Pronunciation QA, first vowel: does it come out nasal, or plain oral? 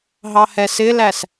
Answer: oral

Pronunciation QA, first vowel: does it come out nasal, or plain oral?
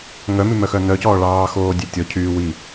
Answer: oral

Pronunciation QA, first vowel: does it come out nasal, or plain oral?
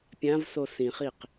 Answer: nasal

